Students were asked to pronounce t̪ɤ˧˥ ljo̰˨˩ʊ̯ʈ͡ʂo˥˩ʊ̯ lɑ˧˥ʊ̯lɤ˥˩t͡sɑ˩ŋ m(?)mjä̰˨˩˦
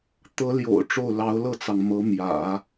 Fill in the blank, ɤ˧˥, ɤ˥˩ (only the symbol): ɤ˧˥